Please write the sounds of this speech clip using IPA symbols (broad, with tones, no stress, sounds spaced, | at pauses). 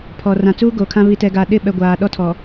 pʰ ɔ˨ r ã˨ t͡s uː˦ ɡ o˨ kʰ ã˦ β i˨ t ɛ˨ ɡ aː˨ ɗ ɪ˦˨ ɓ ɛ˨ ɡʷ aː˨ ɗ ɔ˦ tʰ ɔ˨